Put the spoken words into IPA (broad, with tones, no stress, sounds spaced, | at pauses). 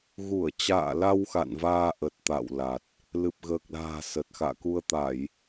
ɣ u˧˩ ə̯ t͡ɕ a̰ː˧˨ l a˧ w x a̰˧˨ n v aː˧ ʔ ə˨˩ t̚ t̪ a̰˧˨ w l a˨˩ t̚ | l ɨ˨˩ p̚ ɣ əː˨˩ k̚ l a̤ː˨˩ s ə˨˩ t̚ x a̰ː˧˨ k u˧ ə̯ t̪ a˧˩˨ j